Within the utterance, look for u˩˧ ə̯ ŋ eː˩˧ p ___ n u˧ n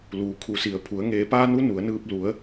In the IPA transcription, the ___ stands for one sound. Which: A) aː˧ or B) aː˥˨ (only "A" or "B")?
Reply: A